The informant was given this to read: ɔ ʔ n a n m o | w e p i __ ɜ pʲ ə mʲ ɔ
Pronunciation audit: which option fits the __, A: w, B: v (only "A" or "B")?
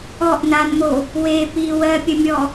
A